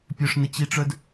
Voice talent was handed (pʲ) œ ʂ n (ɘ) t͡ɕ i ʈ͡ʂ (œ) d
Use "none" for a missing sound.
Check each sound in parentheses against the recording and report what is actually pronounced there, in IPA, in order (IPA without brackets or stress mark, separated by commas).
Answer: pʲ, ɘ, œ